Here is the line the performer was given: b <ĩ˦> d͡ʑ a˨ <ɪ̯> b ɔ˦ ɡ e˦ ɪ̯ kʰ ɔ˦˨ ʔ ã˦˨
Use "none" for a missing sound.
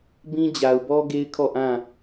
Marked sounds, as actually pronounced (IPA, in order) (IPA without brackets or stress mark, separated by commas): ĩ˦, ʊ̯